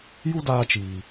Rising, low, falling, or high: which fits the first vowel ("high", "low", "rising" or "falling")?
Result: high